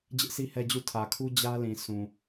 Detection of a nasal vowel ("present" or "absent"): present